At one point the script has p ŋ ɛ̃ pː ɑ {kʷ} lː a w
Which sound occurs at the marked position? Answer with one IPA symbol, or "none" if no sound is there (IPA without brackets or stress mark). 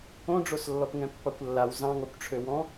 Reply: kʷ